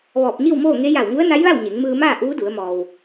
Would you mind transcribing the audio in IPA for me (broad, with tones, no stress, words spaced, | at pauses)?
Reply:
ʋɔː˧˩p̚ɲi˥˨wmoː˥˨ŋe˧˥ ja˧˩wŋu˧˥ə̯na˧˥jʋa˥˨w ɲe˩˧ŋmɯː˧maː˥˨ ʔuː˧˥du˩˧ə̯ mɔː˩w